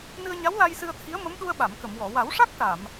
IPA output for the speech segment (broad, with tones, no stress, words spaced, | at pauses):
nɨ˧ə̯ɲa˧˥wla˧j sɨ˧ə̯t̪ʰi˧˥ə̯ mə˧˥mɗu˧ə̯ɓa˨˩˨m kə˨˩˨mwɔ˨˩˨ wa˨˩˦wʂa˦˥k̚ ʈa˨˩˨m